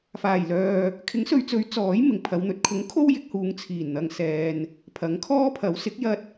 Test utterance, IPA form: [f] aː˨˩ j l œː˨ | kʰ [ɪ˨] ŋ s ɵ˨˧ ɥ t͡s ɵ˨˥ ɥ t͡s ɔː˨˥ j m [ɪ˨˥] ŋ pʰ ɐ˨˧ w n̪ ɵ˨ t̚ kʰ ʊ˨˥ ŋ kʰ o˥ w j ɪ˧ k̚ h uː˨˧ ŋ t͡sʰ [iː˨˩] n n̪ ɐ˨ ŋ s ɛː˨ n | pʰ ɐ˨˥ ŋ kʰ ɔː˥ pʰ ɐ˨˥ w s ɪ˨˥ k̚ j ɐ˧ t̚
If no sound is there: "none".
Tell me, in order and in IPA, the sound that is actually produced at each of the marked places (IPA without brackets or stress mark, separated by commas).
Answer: f, ɪ˨˥, ɪ˨˩, iː˨˩